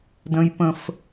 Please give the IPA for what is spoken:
d ə̃˨ j p ə̃˨ f

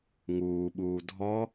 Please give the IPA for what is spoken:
ŋ uː ɓ uː dʱ ɔ

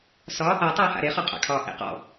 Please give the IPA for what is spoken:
s ɒ | a tˤ aː h a̰ ɾ e χ ɒ qʼ a̰ kʰ ɒː ʔ ḛ q ɔ̰

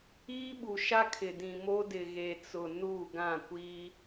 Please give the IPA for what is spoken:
iː˦ ɓ u˨ ʃ a˦ kʰ ɪ˨ d ĩ˨ m o˦ d ɪ˨ ɣ e˨ t͡s ʊ˨ n u˦˨ ɡ ã˦˨ kʷ i˦

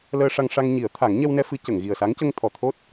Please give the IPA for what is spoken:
l əː˧ ʂ a˧ ŋ ʂ a˧ ŋ ɲ i˨˩˦ ə̯ t̪ʰ a˨˩˦ ŋ ɲ ɛ˧ w n ɛ˧ f ɨ˨˩˦ c ə˨˩˨ ŋ ɣ i˨˩ ə̯ s a˧˥ ŋ c ə˧ ŋ t̪ʰ ɔ˨˩ t̪ʰ o˦˥ t̚

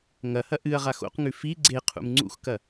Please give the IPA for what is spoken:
ŋ ɐ h ɐ ʔ ɨ ɐ̯ ʁ a x o̰ q ŋ ʉ f i ɡ͡ǀ e qʰ ṵ m ŋ͡ǀ ṵ x k ɐ

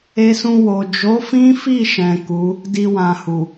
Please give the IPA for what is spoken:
e˧ s ũ˧ w o˨ d͡ʒ o˨˦ f ĩ˦ f i˦˨ ʃ ɛ̃˨ k u˨˦ | d i˧ w ã˨ h u˨

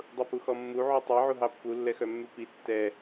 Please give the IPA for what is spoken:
dˤ u p u x ɔ mː u ʕ u tˤ i ʕ u ɦ ɑ pː u lː ɛ x œ mː ʉ p i tː ɛ

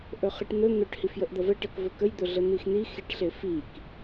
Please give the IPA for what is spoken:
ʔ ɵ χ e ʈ n̪ ɵ n̪ ɵ ʈ h i f j ə ʔ d̪ ʌ v ə ʈ ʌ k v ɵ k ə j d̪ ɵ ɮ ə n̪ i x n̪ i x i ʈ ɬ e f i k

